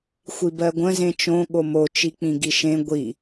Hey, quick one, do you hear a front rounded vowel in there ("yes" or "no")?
no